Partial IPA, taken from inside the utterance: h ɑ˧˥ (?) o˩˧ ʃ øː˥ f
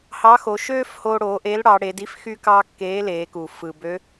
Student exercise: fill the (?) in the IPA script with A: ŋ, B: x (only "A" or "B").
B